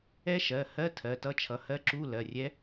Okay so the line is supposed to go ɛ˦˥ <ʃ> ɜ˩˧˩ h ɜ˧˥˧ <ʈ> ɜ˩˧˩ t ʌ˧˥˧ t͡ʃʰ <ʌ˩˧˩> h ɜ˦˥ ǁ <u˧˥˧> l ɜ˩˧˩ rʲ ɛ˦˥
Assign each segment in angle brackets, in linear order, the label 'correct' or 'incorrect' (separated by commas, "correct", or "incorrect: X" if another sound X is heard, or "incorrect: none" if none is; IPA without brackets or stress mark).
correct, incorrect: tʰ, correct, correct